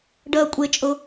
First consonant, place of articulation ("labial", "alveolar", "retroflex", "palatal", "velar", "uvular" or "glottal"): retroflex